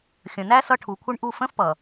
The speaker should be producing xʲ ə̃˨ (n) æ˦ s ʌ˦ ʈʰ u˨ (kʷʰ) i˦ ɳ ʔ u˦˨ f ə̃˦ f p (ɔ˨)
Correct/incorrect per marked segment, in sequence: correct, correct, incorrect: ʌ˨

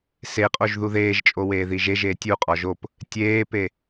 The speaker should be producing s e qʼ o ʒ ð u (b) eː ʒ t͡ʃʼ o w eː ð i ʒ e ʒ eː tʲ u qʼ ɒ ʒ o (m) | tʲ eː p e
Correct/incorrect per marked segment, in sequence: incorrect: ð, incorrect: p

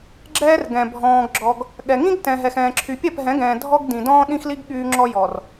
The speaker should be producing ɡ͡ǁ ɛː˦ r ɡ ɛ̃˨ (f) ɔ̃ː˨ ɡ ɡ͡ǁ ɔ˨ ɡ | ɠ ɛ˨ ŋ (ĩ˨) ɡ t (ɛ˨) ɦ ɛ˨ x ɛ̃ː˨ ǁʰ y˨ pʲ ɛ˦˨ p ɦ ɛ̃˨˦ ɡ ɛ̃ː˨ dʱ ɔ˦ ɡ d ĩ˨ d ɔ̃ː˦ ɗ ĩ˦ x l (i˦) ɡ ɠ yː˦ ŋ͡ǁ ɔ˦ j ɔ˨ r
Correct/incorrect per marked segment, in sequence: incorrect: bʱ, incorrect: ĩ˦, incorrect: ɛ̃˨, correct

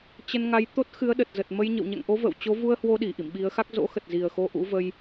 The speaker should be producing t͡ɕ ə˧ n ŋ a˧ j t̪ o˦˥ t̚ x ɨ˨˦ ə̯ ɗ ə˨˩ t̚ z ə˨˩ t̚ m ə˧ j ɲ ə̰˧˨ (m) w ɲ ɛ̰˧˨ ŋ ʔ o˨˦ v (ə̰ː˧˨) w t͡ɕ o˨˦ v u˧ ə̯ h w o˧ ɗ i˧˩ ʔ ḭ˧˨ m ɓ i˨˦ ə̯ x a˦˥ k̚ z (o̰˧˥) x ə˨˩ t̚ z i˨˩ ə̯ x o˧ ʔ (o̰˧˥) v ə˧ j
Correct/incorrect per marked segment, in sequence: incorrect: none, correct, correct, incorrect: ṵ˧˥

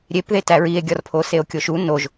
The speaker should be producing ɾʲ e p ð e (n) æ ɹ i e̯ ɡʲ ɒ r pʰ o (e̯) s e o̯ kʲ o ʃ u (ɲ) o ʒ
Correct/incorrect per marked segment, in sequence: incorrect: t, incorrect: none, incorrect: n

